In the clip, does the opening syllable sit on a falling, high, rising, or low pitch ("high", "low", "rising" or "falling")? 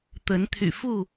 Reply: rising